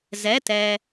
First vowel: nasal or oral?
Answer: oral